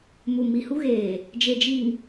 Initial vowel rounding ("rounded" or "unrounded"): rounded